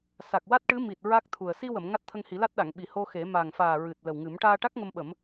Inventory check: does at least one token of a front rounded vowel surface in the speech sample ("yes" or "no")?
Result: no